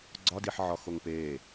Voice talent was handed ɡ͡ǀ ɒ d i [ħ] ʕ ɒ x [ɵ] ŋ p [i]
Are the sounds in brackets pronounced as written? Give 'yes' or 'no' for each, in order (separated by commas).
yes, no, no